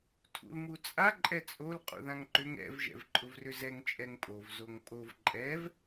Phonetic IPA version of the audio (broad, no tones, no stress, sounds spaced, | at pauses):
tʰ ṵ l m u t͡sʼ a ǃʼ ɛ t͡sʼ o l qʼ ṵ ð ã ŋ ǃ ʏ ŋ ɛ̰ v ʒ ɛ̰ v ǃʼ ʊ v r ʏ z ɛ ŋ t͡ʃʼ ɛ ŋ pʼ o v z o ŋ pʼ o v ǃʼ ɛ v